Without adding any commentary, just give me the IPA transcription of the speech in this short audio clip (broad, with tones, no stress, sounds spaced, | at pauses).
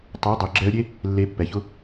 tˤ ʊ˨˦ ə̯ dˤ ʊ˨ ɡ͡ǁ ɛ˧ ə̯ ɾʲ e˦ | lː e˧ pː ɛ˨ ç ʊ˦